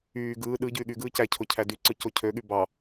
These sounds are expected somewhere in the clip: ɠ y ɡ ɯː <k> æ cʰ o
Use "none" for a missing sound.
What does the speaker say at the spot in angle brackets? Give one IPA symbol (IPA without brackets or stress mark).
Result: c